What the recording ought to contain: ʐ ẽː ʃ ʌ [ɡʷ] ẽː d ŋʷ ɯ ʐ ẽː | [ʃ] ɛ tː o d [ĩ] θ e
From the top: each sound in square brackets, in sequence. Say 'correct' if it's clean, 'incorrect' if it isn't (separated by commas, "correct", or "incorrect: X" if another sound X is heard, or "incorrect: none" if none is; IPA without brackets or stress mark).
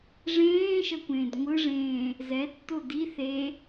incorrect: kʷ, incorrect: z, incorrect: i